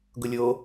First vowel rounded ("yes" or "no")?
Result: yes